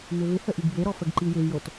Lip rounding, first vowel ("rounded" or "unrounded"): rounded